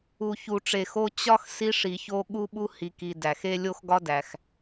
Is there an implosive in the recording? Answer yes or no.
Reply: yes